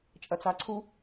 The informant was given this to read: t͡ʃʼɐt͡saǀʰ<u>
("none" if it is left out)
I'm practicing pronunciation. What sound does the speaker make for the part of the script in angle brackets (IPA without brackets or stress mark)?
u